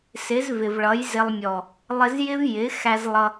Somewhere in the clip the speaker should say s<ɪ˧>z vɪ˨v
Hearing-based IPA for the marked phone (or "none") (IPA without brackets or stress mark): ɪ˨˦